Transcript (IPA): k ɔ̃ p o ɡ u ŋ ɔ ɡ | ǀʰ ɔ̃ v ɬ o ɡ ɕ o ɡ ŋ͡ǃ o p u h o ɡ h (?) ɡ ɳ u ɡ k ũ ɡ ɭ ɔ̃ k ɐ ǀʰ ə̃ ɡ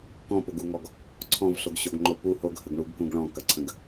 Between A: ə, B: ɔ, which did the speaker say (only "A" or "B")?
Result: A